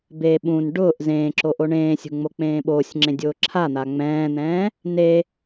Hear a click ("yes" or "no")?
yes